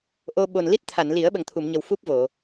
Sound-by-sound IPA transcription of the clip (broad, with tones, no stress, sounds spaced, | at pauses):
ʔ o˧ ɓ o˨˩ n l i˦˥ t̚ t̪ʰ a˨˩˨ n l i˨˩˦ ə̯ ɓ ə˨˩ ŋ t̪ʰ u˨˩˨ m ɲ ə˨˩ w f u˦˥ p̚ v o˨˩˨